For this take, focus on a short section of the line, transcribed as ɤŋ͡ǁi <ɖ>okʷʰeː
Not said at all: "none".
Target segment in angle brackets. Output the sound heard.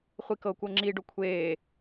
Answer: ɖ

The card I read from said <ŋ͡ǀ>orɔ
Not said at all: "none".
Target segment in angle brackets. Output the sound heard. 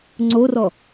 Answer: ŋ͡ǀ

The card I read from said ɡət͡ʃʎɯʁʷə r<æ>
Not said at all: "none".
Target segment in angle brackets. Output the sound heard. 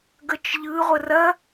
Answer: ɐ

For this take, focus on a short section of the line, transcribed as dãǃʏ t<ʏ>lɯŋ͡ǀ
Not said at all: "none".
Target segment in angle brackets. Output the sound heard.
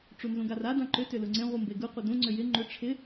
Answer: ʏ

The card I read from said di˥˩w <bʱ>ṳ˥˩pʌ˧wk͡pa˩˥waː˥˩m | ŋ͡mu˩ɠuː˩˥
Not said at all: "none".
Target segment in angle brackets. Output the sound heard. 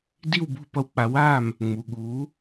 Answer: b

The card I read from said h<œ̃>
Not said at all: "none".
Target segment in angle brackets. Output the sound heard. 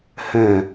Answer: ɛ̃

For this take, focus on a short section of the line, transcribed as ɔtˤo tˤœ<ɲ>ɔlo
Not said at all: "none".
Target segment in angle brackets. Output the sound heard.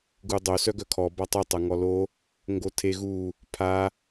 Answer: ŋ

